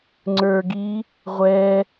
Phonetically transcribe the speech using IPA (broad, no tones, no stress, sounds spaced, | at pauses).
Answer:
ŋ͡ǀ ə˞ ɡ i | ʁʷ ɛ